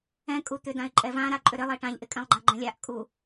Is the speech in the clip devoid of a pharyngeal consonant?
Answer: yes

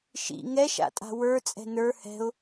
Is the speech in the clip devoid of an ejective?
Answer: no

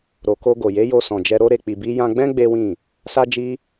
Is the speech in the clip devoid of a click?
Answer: yes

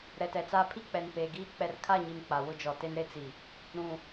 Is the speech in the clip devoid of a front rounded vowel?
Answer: yes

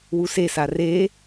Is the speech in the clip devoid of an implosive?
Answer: yes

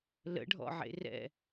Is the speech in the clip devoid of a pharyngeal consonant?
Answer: no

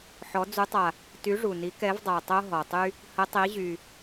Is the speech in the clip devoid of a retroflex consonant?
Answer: no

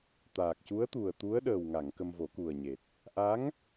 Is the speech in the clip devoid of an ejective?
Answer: yes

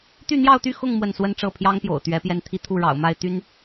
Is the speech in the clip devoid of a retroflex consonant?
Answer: no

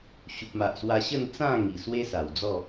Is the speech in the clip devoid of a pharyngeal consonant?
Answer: yes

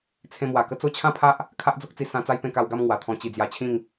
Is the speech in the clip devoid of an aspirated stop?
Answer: no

